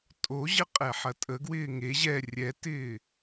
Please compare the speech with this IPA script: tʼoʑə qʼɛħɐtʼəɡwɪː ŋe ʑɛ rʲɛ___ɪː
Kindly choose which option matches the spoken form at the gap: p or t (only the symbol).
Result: t